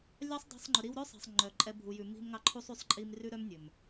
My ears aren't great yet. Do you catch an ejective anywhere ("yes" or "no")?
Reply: yes